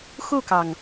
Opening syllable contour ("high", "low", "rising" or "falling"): falling